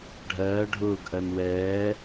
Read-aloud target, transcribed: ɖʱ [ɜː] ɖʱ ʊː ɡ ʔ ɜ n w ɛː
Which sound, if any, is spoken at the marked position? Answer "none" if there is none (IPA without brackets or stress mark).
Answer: ɜː